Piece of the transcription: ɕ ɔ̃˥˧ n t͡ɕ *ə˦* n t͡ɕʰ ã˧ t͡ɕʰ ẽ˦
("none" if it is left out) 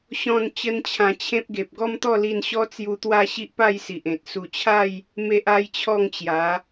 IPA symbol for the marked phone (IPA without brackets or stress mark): ə˦